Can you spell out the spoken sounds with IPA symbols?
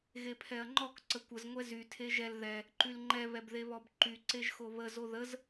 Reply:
ɣepʰɛɐ̯ŋ͡ǃɔk ǀəkʷəz ŋʷɛzy tʰeʒɛl ðɛ | ǃylŋ͡ǃɛ βɛbðeβɔbǃy ǀeʒxoβə zoðəz

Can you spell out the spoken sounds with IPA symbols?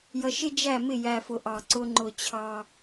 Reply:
jʌ˨ʃɪ˦d͡ʒæ˦˨mɪ˦˨ jæ˨fʊ˨ ʔɑ˨ǀʊ˦ŋ͡ǃʊ˦˨ t͡ɕʰɑ˦

